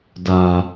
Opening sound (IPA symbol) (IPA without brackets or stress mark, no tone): d